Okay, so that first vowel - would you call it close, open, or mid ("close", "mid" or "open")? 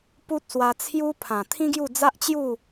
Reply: close